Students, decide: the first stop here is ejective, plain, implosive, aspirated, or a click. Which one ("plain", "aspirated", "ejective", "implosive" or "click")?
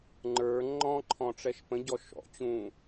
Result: click